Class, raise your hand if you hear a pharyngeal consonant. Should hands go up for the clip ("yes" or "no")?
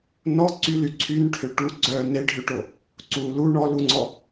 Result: no